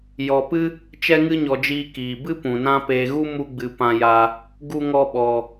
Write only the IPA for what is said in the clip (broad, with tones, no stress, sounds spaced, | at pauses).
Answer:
j ɔ˧ p ɨ˦ | t͡ʃ ɛ˦ ŋ ɨ˦ ɲ ɔ˧ d͡ʒ iː˧ k iː˨ b ɨ˦ p ũ˨ n ã˦ p eː˧ ɣ u˦ m u˧ ɡ͡b ɨ˨ p ã˧ j a˧ | ɡ u˦ ŋ ɔ˦ ɓ ɔ˧